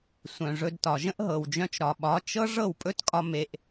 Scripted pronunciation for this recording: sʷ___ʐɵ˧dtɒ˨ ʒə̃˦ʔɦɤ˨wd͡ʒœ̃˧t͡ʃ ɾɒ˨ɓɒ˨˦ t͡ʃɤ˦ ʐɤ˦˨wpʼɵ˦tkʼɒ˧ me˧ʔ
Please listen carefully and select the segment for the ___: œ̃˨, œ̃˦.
œ̃˨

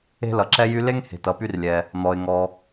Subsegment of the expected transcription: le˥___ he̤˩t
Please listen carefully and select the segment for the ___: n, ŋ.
ŋ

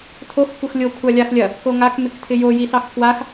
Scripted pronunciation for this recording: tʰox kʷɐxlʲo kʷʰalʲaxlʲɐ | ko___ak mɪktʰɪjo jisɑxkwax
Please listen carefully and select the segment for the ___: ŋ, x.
ŋ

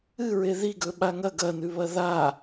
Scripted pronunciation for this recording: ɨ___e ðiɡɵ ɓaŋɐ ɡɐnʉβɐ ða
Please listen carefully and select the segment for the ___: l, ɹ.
ɹ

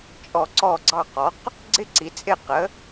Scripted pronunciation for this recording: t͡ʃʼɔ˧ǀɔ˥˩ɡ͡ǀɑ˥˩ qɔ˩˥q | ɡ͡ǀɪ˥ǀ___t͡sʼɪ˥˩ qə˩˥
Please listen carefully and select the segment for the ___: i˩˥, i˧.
i˩˥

